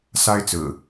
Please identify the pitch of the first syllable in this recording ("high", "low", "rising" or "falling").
high